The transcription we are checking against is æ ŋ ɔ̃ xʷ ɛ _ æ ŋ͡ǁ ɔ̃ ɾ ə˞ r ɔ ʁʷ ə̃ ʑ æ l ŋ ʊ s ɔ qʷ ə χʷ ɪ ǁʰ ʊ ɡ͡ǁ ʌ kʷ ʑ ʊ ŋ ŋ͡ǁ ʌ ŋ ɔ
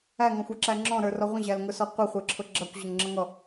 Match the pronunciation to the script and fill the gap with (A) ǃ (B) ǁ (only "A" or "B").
B